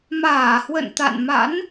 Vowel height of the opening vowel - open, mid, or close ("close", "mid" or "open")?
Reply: open